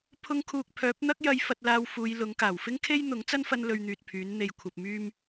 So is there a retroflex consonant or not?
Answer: no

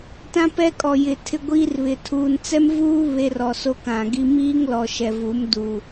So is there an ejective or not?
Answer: yes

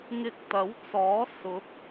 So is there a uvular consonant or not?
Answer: no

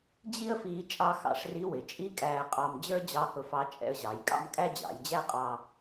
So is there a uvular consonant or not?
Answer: yes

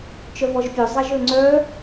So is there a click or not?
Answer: yes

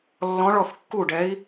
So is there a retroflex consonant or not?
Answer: yes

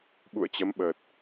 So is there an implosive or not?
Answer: yes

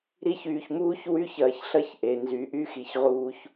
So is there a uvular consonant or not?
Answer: yes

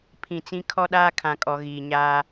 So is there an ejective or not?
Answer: yes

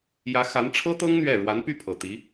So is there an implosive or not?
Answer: no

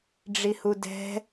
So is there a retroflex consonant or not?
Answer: yes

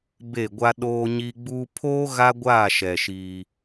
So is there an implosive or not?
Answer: yes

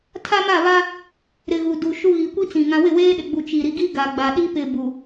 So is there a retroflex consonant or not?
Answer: no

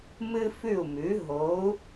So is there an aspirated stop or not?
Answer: no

